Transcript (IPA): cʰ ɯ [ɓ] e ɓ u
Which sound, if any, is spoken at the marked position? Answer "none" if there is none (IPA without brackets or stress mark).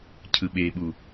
ɓ